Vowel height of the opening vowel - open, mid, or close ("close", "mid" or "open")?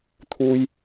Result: close